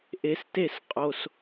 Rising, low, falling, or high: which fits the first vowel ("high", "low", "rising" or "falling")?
low